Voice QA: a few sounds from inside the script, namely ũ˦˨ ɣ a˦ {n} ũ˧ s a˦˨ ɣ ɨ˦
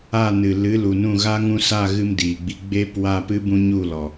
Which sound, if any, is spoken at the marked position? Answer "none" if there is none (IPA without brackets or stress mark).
ŋ